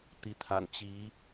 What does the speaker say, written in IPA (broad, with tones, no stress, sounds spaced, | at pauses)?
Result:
t̪ i˨˦ t̪ʰ a̰˨˩ n t͡ɕ i˨˦